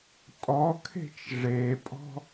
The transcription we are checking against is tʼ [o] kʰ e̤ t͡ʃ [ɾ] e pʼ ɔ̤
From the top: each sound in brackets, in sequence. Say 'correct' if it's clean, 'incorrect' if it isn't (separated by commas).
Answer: incorrect, incorrect